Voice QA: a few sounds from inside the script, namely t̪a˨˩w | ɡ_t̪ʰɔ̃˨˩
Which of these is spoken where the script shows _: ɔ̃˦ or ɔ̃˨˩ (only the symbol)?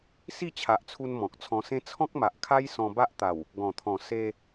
ɔ̃˨˩